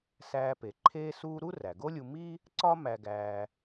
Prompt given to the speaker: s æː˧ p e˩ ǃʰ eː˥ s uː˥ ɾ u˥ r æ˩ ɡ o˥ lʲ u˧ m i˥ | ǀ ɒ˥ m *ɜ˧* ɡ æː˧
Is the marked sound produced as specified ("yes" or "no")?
no